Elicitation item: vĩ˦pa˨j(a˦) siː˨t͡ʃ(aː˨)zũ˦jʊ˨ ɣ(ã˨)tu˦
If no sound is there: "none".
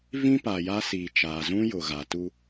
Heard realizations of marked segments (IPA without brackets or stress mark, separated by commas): a˦, aː˨, a˨